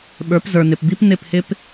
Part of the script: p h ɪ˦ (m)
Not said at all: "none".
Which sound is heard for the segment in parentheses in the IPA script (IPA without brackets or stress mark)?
p